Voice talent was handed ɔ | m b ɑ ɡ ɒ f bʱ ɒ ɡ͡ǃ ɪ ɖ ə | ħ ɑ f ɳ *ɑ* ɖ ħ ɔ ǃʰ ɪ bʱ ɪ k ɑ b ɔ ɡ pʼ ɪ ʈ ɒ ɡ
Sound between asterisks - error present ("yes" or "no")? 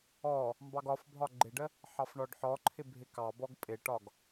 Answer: yes